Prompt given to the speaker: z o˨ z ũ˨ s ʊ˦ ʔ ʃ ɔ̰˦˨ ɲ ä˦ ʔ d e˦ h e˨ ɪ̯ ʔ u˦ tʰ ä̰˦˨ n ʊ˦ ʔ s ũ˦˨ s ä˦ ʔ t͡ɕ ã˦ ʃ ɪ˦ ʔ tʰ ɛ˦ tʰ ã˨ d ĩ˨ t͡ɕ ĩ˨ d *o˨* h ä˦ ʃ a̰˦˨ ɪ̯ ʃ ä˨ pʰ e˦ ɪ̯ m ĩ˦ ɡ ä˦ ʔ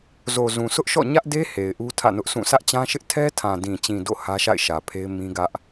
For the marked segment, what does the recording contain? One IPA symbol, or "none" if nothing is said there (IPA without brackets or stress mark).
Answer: o̰˦˨